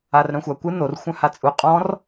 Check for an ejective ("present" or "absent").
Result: present